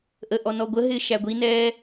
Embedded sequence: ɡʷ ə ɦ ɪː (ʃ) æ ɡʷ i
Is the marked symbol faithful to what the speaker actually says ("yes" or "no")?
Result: yes